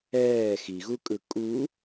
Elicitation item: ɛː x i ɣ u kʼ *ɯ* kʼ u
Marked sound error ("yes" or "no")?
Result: no